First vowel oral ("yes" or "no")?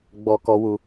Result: yes